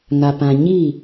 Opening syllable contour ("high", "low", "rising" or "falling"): low